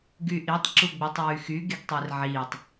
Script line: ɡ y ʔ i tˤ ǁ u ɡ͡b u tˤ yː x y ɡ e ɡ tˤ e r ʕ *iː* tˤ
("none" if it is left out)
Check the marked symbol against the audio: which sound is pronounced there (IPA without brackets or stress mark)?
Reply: iː